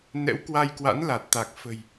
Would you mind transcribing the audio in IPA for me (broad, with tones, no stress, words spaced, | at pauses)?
nɛ̰˧˥wkwa˧jkwa̰˧˥nla˨˩t̚ t̪a˨˩k̚fə̤˨˩j